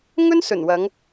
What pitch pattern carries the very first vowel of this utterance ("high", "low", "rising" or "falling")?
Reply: high